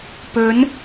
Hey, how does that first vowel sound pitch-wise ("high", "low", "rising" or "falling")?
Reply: rising